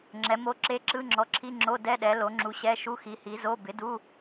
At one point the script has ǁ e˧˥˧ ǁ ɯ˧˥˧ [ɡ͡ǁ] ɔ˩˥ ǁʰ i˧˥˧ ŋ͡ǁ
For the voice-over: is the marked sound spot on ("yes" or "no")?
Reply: no